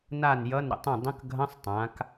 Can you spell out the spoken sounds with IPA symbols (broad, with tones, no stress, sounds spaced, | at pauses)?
n a˥˩ n j ʌ˧˥˧ n ɾ ə̰˩˧ tˤ ə̃˥˩ dˤ ə̃˧˥˧ k ɡʱ ɐ̃˧˥˧ sˤ tˤ ã˩˧ k